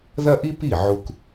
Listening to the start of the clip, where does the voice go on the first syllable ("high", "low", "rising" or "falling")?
high